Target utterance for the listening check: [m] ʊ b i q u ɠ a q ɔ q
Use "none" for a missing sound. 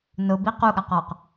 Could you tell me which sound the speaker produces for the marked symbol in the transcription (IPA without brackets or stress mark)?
n